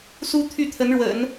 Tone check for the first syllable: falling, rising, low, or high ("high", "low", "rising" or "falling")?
high